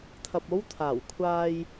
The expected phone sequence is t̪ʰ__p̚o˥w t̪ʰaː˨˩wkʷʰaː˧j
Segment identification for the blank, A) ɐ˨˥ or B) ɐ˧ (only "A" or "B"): B